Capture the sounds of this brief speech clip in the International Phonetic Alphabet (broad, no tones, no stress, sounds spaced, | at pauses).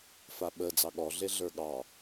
f a ɓ ə d͡z ɑ ɠ ɔ ɮ e ɮ ə˞ ɠ ɑ